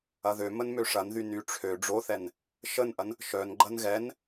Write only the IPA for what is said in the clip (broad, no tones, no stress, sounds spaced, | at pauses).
ɐ ð ø m ə n m ø ʂ ɐ n ð y n y ʈ͡ʂʰ ø ɖ͡ʐ o θ ɛ n | ʃ ə n ʔ ɐ n | ʃ œ n ɡ͡ǃ ɐ n ɣ ɛ n